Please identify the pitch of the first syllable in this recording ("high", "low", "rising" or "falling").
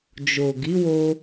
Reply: low